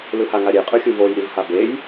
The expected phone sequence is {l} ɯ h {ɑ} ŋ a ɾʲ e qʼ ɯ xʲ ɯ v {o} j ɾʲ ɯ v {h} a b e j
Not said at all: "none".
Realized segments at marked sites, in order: l, a, o, h

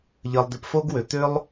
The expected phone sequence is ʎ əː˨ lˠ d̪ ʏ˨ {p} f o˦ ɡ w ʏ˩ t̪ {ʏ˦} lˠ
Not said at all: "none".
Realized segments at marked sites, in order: p, ʏ˥

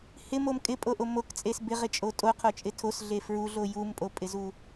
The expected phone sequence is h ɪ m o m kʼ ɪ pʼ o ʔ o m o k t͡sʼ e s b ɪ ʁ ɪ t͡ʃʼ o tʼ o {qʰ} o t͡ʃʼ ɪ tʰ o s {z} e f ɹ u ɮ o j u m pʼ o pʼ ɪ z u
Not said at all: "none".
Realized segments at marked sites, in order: qʰ, ɮ

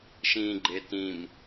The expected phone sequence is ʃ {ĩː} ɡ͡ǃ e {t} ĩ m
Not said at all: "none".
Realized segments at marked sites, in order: ĩː, t

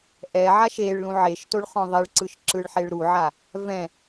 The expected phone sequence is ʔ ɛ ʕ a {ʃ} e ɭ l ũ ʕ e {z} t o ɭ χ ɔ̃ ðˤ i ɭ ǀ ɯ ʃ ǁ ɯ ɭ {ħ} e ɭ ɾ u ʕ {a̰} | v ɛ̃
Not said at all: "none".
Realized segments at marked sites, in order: ʃ, ʃ, ħ, a

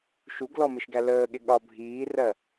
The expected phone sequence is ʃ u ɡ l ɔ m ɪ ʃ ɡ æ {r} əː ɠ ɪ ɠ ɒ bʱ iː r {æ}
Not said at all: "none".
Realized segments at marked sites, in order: l, ɜ

